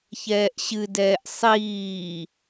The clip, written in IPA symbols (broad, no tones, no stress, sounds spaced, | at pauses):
ç ɛː ʔ ɕ ɨ d ɛː ʔ sˤ iː